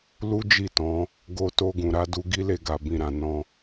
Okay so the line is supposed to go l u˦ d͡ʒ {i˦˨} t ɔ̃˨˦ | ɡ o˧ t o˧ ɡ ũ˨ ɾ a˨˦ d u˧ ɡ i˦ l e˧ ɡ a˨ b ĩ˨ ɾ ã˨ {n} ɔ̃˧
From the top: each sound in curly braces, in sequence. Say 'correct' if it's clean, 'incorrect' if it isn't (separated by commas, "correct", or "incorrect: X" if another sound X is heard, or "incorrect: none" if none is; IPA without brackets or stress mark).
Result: correct, correct